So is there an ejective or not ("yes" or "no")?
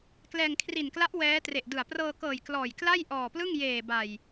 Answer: no